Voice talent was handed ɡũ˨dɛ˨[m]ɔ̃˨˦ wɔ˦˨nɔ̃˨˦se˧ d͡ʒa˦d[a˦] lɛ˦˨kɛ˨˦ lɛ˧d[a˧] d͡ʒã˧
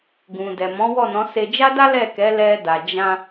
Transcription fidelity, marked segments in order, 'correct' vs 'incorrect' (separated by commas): correct, correct, incorrect